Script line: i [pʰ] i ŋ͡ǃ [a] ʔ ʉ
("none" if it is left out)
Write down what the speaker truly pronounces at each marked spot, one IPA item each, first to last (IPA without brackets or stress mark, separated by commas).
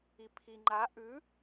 pʰ, a